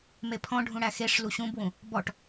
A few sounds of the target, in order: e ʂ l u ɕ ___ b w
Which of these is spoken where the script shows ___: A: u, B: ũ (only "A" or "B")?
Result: B